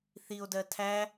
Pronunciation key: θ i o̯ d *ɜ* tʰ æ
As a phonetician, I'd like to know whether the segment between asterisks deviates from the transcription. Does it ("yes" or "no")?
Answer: no